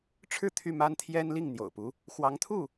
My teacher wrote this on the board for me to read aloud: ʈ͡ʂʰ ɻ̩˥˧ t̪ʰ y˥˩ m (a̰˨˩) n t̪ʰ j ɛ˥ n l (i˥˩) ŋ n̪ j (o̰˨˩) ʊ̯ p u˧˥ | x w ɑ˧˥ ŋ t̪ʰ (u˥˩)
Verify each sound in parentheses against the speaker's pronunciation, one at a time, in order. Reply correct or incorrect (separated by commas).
incorrect, correct, correct, correct